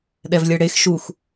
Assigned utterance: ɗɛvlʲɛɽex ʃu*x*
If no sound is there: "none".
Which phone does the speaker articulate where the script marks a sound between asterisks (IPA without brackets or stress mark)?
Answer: x